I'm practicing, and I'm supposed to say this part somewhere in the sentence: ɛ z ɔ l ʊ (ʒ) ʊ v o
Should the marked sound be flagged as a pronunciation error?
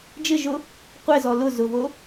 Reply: yes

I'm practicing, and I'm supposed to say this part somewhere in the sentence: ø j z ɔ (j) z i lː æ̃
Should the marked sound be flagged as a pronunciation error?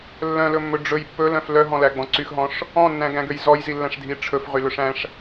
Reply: no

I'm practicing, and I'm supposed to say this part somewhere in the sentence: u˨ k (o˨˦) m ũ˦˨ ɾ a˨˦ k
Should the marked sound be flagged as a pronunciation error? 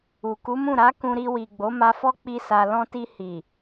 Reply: yes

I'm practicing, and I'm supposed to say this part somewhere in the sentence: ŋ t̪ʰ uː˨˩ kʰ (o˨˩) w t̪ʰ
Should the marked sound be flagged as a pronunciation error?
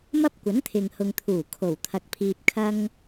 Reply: no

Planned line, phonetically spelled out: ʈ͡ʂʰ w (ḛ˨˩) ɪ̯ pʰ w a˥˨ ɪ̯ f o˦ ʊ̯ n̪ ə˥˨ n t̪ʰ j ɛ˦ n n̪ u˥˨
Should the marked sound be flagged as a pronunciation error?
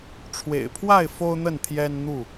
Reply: no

